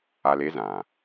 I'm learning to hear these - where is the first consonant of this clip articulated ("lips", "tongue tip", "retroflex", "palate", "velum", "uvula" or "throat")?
tongue tip